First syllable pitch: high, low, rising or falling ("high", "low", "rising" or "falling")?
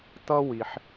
high